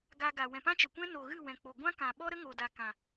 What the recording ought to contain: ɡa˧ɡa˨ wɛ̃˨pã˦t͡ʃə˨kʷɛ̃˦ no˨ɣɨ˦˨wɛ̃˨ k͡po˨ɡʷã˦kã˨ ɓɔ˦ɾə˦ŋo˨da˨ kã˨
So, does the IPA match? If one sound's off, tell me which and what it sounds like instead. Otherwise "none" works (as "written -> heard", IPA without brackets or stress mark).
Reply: none